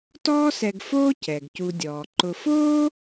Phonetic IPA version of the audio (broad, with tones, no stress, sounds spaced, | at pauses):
t ɔː˦ s ɛ˨ ɡ f oː˦ c ɛ˩ ɡ c u˨ dʲ ɔː˩ ǃ ʊ˨ f oː˥